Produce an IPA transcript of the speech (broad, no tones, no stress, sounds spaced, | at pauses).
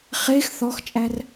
χ e x θ ɔ x t͡ʃʼ æ r